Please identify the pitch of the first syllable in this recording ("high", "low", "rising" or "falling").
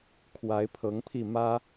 rising